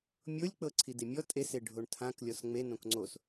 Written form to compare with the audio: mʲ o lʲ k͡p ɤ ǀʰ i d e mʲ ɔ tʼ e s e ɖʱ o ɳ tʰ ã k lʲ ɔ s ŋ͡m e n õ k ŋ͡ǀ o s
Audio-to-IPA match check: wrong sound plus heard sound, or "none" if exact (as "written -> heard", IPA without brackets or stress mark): none